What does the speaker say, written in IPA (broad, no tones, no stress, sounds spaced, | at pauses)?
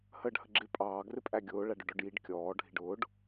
h əː ɖ h ə ɡ͡ǁ ɪ pʼ ɑː ɡ r ɪ pʼ æ ɡʲ ʊː ɭ æ ɖ ʊ ɖ ɔ ɖ j i ɖ kʲ ɔː ɖʱ i ɖ ʊː ɖ